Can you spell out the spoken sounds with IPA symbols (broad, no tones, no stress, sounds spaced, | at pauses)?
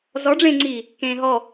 z ɔ ɖ͡ʐ ẽː ŋ͡ǀ iː | k ẽː ɦ ɔ